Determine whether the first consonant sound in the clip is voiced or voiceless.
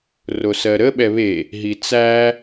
voiced